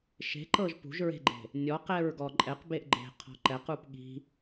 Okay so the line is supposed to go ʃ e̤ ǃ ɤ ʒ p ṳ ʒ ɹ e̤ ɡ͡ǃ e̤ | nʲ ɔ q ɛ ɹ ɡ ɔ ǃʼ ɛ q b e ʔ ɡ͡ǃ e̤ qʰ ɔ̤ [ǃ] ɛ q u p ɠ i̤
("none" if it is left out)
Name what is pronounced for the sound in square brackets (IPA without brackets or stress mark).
ǃ